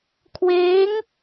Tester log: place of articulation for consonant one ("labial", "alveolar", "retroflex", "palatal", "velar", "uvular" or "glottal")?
velar